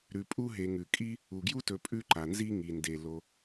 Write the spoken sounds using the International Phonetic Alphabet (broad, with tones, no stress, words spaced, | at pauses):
ɾʉ˨pʼu˥ɦe˨ ŋʉ˩kʼi˥ | u˩ɡju˥tɵ˨ pʼʉ˦ǃa˩nzi˦ ŋi˩nde˩ lo˨